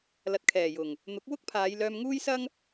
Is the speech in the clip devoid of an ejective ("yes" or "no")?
yes